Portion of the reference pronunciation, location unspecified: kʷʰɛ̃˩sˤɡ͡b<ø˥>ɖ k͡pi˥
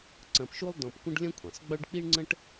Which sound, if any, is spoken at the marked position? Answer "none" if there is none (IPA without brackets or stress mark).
ø˥